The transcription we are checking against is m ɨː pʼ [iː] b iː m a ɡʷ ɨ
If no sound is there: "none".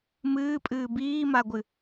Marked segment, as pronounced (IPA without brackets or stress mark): ɨː